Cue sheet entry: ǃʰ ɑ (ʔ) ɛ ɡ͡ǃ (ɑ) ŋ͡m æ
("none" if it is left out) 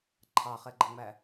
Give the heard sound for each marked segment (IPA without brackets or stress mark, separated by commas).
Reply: χ, ə